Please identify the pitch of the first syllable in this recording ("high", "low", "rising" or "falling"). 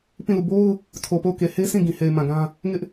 falling